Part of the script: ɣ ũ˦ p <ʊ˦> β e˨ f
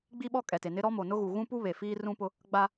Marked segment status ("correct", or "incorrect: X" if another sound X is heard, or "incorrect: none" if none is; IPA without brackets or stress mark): incorrect: u˦